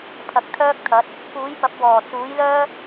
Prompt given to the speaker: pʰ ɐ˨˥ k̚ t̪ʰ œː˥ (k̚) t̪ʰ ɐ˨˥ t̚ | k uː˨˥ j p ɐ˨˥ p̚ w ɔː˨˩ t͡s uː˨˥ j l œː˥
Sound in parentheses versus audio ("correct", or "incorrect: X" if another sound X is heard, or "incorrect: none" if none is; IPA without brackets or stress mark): correct